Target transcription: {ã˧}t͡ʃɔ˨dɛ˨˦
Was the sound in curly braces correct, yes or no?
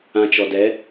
yes